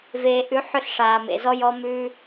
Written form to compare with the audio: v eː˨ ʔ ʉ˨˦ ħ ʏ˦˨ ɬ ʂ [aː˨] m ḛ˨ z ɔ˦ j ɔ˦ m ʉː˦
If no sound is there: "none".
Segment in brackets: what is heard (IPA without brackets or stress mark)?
aː˨